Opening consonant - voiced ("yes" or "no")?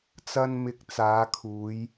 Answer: no